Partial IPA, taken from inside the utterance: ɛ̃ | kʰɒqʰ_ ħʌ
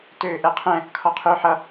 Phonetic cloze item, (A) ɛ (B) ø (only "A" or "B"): B